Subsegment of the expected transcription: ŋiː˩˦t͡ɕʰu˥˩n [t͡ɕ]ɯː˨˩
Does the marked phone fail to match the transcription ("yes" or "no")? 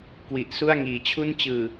no